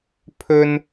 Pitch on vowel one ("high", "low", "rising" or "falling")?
high